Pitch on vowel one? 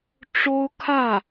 high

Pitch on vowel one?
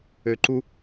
low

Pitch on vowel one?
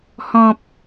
high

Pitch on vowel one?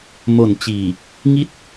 low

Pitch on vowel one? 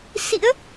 rising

